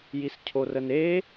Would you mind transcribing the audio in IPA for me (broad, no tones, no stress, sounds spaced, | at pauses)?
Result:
j i s cʰ o r ə n e